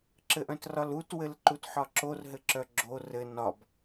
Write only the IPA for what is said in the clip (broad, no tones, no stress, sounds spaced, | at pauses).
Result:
ǁ ɘ ʔ œ̃ t r ɒ l u t w ɘ l ǃ u t ħ ɒ ǁ o r ɦ ɘ ǁ œ ɡ͡ǁ o r ɘ n ɒ b